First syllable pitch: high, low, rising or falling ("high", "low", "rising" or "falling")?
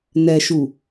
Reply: low